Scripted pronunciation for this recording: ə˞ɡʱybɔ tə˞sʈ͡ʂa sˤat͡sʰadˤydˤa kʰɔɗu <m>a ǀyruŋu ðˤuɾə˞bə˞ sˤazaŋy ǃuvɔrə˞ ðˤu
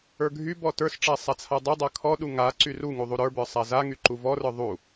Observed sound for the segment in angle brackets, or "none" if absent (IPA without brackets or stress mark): ŋ